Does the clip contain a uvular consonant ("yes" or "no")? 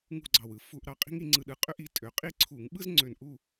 yes